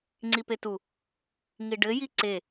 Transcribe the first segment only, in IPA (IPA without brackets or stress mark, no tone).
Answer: ŋ͡ǀ